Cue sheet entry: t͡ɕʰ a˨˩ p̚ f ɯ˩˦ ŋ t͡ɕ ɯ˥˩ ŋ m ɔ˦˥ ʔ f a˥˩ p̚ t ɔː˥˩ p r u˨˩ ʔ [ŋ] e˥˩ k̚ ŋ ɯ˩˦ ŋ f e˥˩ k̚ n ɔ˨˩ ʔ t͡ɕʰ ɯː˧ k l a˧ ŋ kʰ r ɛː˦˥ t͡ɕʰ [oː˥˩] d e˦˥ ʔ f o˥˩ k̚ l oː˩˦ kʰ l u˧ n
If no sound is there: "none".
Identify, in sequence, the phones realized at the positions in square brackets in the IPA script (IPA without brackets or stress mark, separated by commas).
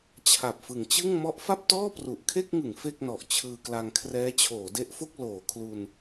kʰ, oː˩˦